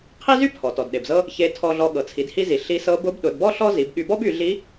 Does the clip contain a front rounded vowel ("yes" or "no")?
yes